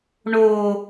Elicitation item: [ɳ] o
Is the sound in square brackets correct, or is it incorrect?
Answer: correct